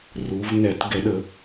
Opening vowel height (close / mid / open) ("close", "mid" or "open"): close